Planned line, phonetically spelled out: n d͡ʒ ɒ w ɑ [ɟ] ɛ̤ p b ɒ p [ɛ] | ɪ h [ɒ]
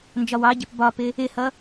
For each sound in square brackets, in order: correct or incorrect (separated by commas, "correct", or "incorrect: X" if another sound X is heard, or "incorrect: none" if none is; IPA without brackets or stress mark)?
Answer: correct, incorrect: ɪ, incorrect: ʌ